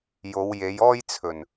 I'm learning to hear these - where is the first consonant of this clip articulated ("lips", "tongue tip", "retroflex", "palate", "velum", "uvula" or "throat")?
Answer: palate